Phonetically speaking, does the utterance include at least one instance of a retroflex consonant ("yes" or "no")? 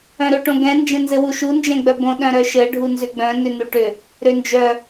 yes